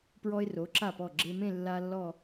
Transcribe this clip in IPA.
p ɹ ɔ˧ ɪ̯ r o˩˧ ǁ a˧˩ p ɔ˧˩ ɡ͡ǁ e˧ m ẽ˥˧ lː a˧ lː ɔ˥˧

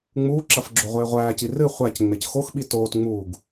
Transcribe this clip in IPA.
ŋ͡m uː ǁ ɐ f ɡ͡ǁ o ʁʷ eː ʁʷ æː c i r ɨ χʷ æ c ŋ͡m e c x o x ɓ i t oː t ŋ͡m uː ɡ

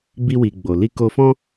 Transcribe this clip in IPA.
b i˧ w i˨ ɡ͡b o˨ l i˧ k o˧ f ɔ̃˦

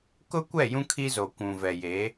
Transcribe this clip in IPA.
k ʊ˦ kʷ ɛ˦˨ j ũ˦ kʰ i˦ z o˨ kʷ ũ˨ v ɛ˨ j e˨˦

